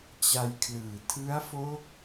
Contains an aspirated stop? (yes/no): yes